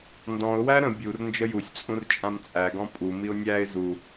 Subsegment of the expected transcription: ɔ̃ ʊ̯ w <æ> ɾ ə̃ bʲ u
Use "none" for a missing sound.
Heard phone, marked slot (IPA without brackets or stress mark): æ